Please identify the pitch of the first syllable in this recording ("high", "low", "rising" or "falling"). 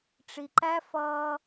low